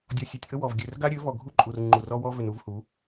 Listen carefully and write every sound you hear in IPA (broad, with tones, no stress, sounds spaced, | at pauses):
dʲ ɔ˨ sʲ ø˨ tʲ ʔ ə˦ w ɔ˨ v ɡʲ ø˨ r ɡ a˦ ɾʲ ø˨˦ v ɔ˨ ɡʱ u˦ ǃʼ u˨ r ŋ͡ǃ u˨ r ɔ˦ w ɔ˦ v ø˨ n u˦ v h u˨˦